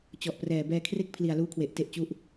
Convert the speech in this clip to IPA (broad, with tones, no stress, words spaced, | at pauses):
t͡ɕɔ˨˩ʔprɛː˨˩ bɛː˧kʰre˥˩k̚pʰli˨˩a̯ luː˦˥kʰwe˨˩ʔ te˥˩ʔt͡ɕu˥˩ʔ